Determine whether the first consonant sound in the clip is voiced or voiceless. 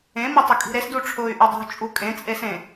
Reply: voiced